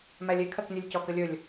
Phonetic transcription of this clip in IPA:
mælʲe kʰɜknʲɜlʲcɔk əlʲɵlʲ

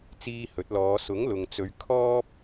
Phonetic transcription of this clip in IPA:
t͡siː˧hɵ˨˥t̚lɔː˨˧ sʊ˨˥ŋlʊ˨ŋt͡sɵ˨˧ɥ kʰɔː˥p̚

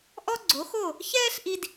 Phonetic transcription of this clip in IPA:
ʔɔ˥ɡ͡ǀo˩˥ xo˥˩ | çɛː˥ɬʔi˧d

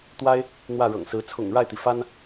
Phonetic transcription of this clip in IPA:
t̪wa˥ɪ̯ | n̪wä˥˩ɻɤ̰˨˩ŋsɹ̩˧˥ t͡sʰʊ̰˨˩ŋɻa˥˩ɪ̯t̪i˩ fa˥n

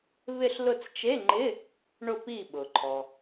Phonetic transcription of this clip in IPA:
βɪ˦˨ɬlʊ˦˨t͡st͡ʃe˧˥˧ŋ͡ǃɪ˧˥˧ | ɳʊ˦˨pi˦˨ɓʊ˩ǃʰɔ˩

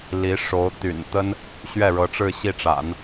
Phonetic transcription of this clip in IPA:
li˧˥ʂo˧˥ʊ̯ t̪y̰˨˩nt̪ə˥n | ɕɥɛ˥˩ɻɤ˧˥ʈ͡ʂɻ̩˥˧ ɕi˥˩ʈ͡ʂa̰˨˩˦n

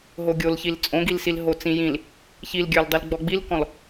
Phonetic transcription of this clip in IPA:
ɦoɡʲolçil t͡sʼõɡilsil ɦot͡sĩjĩl | çilɡʲə˞ldˤil ɡ͡bɔɡ͡bilkɔ̃l

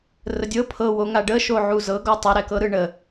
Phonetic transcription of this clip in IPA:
rədʲɤ pʰɤwo ŋaɖəʃo ʕuzɤɡɔ tˤɛɾɛkɤɾɯ ɳə

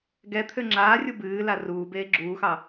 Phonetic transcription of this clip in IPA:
ɡɛt̪ʰø ŋ͡ǁaːrʲu bɨːla ruːbeː ɡ͡ǁuːxɑ

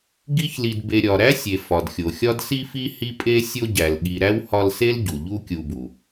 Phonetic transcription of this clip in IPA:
ɡi˦çli˨d be˨ɾʲɒ˩ɾæ˥sʲe˩ fɒ˩dxʲo˩xʲɒ˥d si˦fi˦ hi˦pʼe˦ sʲo˦ɟæ˩lɠi˨ ɾæ˥whɒ˦lse˥l ɟu˩ʎu˦kʲu˨bu˩

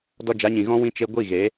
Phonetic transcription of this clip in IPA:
dɔ˧d͡ʒa˨˦ɲĩ˨ ɣɔ̃˦wĩ˦ t͡ʃe˧ ɡʷi˦˨ɣe˨˦

